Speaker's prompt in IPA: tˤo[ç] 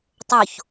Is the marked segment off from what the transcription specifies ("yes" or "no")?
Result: no